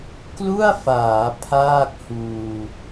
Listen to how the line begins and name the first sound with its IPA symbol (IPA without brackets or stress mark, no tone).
k